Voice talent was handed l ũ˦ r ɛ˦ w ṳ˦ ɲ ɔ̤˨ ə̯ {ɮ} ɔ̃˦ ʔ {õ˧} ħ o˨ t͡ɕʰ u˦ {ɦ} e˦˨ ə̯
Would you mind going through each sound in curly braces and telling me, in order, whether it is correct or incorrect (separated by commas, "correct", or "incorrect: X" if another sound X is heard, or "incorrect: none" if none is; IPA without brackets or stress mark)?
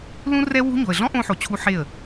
correct, correct, incorrect: ħ